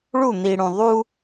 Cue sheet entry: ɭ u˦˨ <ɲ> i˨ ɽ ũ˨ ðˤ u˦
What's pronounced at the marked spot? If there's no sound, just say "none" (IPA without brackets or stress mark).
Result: n̪